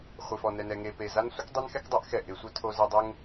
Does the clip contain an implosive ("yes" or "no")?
no